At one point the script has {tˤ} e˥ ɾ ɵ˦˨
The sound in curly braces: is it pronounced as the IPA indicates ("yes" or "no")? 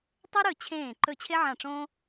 yes